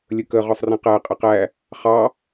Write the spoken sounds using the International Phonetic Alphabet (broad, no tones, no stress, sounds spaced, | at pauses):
lʲ ə k ə ʁ ɒ sˤ r ĩ q æ qʼ ɪ q æ | χ ɑ